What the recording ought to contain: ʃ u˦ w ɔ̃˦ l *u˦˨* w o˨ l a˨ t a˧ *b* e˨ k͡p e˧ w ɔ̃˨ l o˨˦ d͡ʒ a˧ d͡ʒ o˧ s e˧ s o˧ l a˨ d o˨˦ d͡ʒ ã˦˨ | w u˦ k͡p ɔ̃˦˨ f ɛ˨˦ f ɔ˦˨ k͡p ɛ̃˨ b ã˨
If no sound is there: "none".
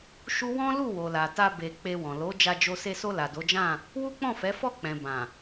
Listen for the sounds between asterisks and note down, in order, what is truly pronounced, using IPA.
u˦˨, b

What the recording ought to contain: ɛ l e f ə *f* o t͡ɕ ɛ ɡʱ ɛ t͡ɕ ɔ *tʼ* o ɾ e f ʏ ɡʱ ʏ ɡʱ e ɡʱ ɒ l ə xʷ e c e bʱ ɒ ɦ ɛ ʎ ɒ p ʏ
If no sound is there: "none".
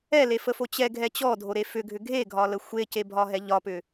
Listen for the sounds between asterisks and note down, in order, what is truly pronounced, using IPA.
f, dʱ

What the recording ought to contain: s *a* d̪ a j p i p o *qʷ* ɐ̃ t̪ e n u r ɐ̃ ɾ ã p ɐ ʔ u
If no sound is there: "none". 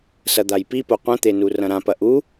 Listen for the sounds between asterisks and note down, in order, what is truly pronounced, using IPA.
ɐ, qʷ

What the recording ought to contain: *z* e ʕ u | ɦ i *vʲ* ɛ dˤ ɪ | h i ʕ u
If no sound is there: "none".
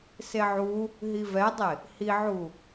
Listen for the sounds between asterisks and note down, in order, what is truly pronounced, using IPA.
s, v

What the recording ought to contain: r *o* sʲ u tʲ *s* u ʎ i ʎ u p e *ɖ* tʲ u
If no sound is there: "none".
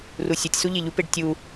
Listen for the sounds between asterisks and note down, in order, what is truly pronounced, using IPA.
u, s, ɖ

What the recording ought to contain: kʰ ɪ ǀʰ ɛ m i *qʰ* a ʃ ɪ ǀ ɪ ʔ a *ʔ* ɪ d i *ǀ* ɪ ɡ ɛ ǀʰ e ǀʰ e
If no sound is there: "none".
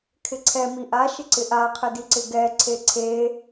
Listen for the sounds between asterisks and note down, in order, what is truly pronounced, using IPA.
ʔ, qʰ, ǀ

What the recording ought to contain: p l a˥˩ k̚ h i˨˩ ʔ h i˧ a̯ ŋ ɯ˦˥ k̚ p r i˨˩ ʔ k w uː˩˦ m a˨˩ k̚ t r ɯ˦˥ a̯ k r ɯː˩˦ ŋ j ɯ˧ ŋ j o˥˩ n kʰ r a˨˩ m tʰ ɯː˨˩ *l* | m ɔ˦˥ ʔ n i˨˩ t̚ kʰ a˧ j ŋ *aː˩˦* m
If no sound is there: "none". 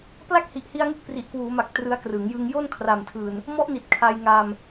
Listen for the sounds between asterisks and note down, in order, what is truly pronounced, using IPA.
n, aː˧

